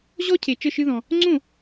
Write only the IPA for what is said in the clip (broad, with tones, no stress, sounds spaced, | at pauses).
ʑ ɔ˦ cʰ e˨ t͡ʃ ə˥˨ ʃ ɨ˦ ð ɔ̃˨ | ŋ͡ǀ õ˥˨